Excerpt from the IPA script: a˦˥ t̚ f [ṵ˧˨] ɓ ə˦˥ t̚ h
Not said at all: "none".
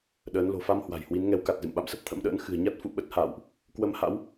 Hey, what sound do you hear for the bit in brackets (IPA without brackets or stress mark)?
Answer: ṵ˧˨